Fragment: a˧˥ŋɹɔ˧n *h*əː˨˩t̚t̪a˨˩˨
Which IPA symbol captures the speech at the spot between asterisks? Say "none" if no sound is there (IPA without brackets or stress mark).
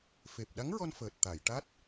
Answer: f